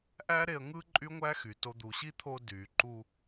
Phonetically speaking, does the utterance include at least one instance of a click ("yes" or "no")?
yes